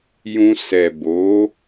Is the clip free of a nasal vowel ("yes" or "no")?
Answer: no